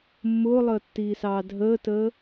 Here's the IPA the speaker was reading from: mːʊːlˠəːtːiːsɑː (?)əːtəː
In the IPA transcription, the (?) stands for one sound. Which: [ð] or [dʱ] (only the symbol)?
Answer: dʱ